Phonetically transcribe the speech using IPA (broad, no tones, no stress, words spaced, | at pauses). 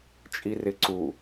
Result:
t͡ʃʼirɪǀu